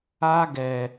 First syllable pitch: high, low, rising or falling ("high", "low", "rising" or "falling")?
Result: high